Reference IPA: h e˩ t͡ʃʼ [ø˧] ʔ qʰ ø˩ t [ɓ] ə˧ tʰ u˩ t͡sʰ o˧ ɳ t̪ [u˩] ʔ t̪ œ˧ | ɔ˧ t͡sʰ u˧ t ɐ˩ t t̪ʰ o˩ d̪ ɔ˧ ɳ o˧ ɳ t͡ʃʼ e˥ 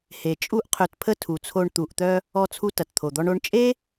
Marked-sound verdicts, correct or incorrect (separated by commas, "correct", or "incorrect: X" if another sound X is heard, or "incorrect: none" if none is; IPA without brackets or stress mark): incorrect: u˧, incorrect: pʰ, correct